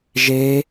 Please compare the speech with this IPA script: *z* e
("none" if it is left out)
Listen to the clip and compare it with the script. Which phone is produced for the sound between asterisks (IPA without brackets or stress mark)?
ʒ